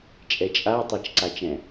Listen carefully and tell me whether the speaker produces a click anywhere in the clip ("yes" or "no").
yes